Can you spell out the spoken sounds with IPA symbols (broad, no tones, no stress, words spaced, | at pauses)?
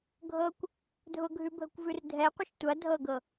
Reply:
ɡʱɤkʷ | dʱʊɡʱʉbʱəkʷvʉr dʱɛqʷəʃ tʷɐ dʱɤɡɤ